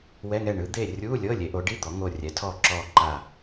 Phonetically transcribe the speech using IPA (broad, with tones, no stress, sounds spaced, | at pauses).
w ɛ˧˥˧ ŋ ɛ˦˨ ɳ ɯ˩˥ d̪ e˦˨ rʲ u˧˥˧ lʲ ɤ˧˥˧ lʲ e˩˥ ʔ o˩˥ ɖ i˧˥˧ d̪ ɔ˩˥ ŋ o˦˨ rʲ ɛ˩˥ tʰ ɔ˦˨ ǁ ɔ˦˨ ǃ a˦˨